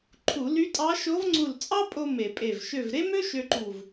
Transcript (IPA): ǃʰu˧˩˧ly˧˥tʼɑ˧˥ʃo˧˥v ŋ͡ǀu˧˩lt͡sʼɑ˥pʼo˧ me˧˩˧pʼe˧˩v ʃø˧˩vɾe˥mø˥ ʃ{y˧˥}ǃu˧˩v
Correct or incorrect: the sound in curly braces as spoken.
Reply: incorrect: ø˧˥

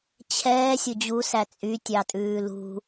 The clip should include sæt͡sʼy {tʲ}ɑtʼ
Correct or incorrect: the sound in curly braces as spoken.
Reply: correct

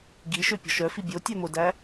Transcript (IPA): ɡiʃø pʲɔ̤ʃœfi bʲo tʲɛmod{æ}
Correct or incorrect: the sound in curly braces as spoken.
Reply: correct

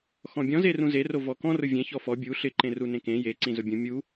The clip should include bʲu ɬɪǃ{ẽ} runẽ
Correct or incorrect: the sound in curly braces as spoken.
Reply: correct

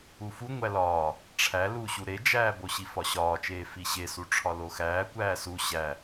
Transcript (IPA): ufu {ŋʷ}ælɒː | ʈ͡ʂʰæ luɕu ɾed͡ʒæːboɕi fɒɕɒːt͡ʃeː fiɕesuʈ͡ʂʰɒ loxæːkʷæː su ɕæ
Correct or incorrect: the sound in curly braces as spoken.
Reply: correct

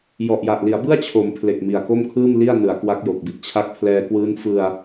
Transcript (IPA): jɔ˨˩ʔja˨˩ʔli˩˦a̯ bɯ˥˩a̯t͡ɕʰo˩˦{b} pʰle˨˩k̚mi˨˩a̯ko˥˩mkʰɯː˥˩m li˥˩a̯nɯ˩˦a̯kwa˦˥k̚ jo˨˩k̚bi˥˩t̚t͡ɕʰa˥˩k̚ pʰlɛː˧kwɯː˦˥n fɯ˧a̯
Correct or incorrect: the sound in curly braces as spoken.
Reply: incorrect: m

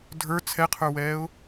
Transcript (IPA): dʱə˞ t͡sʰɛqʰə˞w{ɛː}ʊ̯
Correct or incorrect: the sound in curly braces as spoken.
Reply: correct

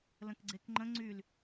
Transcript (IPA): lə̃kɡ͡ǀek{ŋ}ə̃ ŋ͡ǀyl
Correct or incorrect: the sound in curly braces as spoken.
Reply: incorrect: ŋ͡ǃ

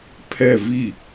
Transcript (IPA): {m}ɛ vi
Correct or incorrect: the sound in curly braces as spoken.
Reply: incorrect: pʰ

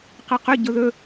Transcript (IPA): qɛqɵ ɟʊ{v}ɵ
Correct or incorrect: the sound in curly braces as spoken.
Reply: incorrect: ð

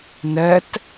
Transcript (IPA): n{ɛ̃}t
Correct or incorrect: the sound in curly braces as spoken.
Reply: incorrect: ɛ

